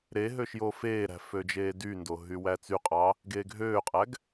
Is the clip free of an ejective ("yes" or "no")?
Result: no